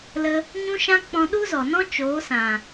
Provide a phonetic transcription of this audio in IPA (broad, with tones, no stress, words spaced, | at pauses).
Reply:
lə˧ | ɲũ˦ʃã˦ k͡pɔ̃˧ɗu˦zɔ˨nɔ̃˦ t͡ʃoː˨˦sã˨